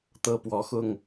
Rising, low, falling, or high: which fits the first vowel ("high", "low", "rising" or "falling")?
high